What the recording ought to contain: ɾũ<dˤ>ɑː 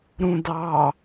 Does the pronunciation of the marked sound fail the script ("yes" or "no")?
yes